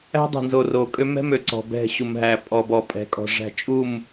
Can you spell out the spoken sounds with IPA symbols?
æ̤˦ dˤ ɛ̤˨ n z o˨ r o˨ kʼ ø˦ m ɛ̤˦ m ø˨ ǀ ɔ̤˨ b ɛ̤˦˨ ɕ u˨ m ɦ æ˨ pʼ ɔ˨ b ɔ˨ pʼ ɛ̤˨ kʼ ɔ̤˨ ʐ æ̤˨ t͡ʃʼ u˦˨ m

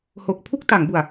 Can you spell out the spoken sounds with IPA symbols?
h o˨˩ k̚ pʰ u˥˩ k̚ t a˩˦ ŋ b u˨˩ a̯

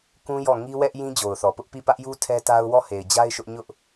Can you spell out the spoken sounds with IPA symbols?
k ũ˦ j ɔ˦˨ ŋ i˦ w ɛ˦ ʔ j ĩ˦ d͡ʑ o˨ ʊ̯ θ ɔ˨ p ʊ˦ ʔ p i˦˨ p ä˦ ʔ j u˦ tʰ ɛ˦ t a˦ ʊ̯ w ɔ˦˨ h e˨ ɪ̯ d͡ʑ a˦ ɪ̯ ʃ ʊ˦ ʔ ɲ ʊ˦ ʔ

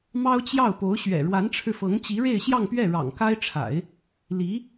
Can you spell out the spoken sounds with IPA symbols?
m ɑ˥ ʊ̯ t͡ɕ j ɑ˥˩ ʊ̯ p o˧˥ ʊ̯ ɕ ɥ ɛ̰˨˩ ɻ w a˧˥ n ʈ͡ʂʰ ɻ̩˧ f ɤ˧˥ ŋ t͡ɕ i˧˥ ɻ e˥˧ ɪ̯ ɕ j ɑ˥˧ ŋ p ɥ ɛ˥˩ ɻ ɑ̰˨˩ ŋ k a˥ ɪ̯ ʈ͡ʂʰ a̰˨˩˦ ɪ̯ | l i˧˥

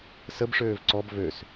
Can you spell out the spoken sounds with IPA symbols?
s ə b ʂ øː v ǀ ɔ b v ø s

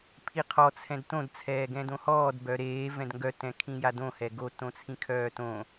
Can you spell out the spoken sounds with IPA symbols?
pʰ i qʰ ɔ t͡sʰ ɛ̃ d t õ d t͡sʰ ɛː ɡ ɛ̃ d õ h ɔː d b œ ɾ eː v ɛ̃ d ŋ ɡ œ t ɛ̃ kʰ ĩ j a d õ h ɛ ɡ o t õ t͡sʰ ĩ kʰ œː t õ

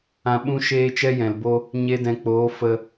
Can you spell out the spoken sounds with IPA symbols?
ã˧ ɓ ũ˦ ʃ eː˦ t͡ʃ ɛ˦ j ɛ̃˨ l b o˦ | ɲ e˧ d ɛ̃˨ k͡p oː˨˦ f ə˧

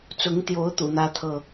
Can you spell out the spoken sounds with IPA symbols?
t͡s ʊ˨˦ ŋ t̪ j o˨˦ ʊ̯ t̪ ṵ˨˩ n̪ ä˦ t̪ʰ ɤ˥˨

